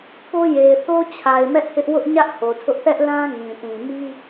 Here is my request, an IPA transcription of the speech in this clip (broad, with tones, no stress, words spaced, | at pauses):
po˦je˨ɪ̯ θo˦t͡ɕʰa˨ɪ̯mɛ˦ʔ hɪ˦ʔ wʊ˦ʔɲä˦ʔ ho˨tʰʊ˦ʔ θɛ˦ʔlã˦ ŋĩ˨tĩ˨ mi˦